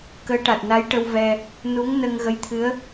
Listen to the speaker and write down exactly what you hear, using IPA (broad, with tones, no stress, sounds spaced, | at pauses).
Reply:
k əː˧˥ ʈ a˨˩ t̚ n a˧˥ j ʈ ə˧ w v ɛ˧ | n u˧˥ ŋ n ə˧ ŋ ɣ ə˧˥ j t̪ʰ ɨ˧˥ ə̯